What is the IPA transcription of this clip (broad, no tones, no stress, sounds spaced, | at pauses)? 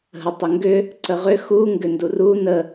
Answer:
ɦ ə tˤ ə ŋ ɡ ʏ | ǀ ə ʁ ʏ x u ŋ ɡ ʏ n d u r u n ə